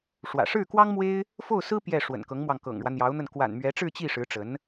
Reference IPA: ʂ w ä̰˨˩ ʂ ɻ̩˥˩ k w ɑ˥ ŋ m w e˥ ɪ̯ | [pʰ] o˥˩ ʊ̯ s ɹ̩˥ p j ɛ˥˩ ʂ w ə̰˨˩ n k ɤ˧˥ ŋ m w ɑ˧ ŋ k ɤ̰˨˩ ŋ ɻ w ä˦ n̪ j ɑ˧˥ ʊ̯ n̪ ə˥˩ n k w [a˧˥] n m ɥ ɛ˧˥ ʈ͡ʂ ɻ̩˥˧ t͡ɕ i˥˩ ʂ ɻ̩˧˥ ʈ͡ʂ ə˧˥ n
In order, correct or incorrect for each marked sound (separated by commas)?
incorrect, incorrect